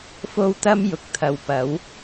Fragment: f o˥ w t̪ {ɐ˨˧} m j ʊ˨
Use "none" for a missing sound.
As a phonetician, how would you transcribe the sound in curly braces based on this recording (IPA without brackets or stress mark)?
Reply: ɐ˥